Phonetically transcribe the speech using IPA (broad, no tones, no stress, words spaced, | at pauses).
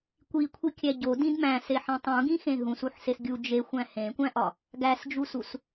kʷikʷʰikʲæ ɟodĩd mæ̃seħẽ tˤũɡĩxẽ ɦũsuħses ɡʲu d͡ʒexʷæ̃ hẽkʷæ̃ʔɒ | ɡæsd͡ʒusus